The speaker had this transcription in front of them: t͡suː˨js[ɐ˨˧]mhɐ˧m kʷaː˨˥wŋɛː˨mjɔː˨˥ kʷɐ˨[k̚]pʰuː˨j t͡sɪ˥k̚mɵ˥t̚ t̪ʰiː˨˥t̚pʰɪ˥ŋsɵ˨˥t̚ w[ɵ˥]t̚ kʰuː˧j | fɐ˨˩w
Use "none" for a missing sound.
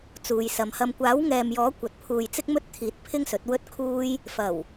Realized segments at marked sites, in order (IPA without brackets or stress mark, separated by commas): ɐ˨˧, t̚, ɵ˥